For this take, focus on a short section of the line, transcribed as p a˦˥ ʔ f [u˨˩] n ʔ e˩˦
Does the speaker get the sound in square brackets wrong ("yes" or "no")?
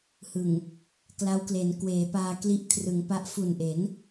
no